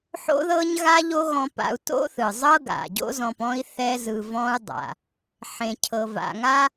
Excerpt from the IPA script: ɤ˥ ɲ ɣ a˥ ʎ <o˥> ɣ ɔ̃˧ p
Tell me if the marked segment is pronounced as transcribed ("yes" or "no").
yes